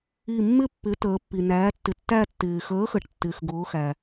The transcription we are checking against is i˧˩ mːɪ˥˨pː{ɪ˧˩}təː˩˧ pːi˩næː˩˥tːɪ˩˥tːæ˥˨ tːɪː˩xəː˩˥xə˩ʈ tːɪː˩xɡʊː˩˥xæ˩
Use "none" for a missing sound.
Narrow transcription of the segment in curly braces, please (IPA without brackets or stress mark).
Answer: ɪ˩˥